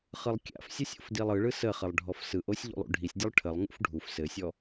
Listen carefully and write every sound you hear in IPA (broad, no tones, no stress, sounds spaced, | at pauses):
χ ɯ lˠ kʲ a̰ f sʲ ɯ sʲ o̰ f d i lˠ ɯ ɭ ɯ s ə χ ə lˠ ɖʱ ɔ f s ɯ ʔ o sʲ ʎ ṵ lˠ ṵ ɖʱ i sʲ dʲ o lˠ ʈʰ ə lˠ ŋ ṵ f ɖʱ u f s ɘ sʲ ɔ